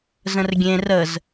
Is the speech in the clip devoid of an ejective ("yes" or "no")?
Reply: yes